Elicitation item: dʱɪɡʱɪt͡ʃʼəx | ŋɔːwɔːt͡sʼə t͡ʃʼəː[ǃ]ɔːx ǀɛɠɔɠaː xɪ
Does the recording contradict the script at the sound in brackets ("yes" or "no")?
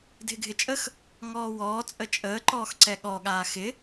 no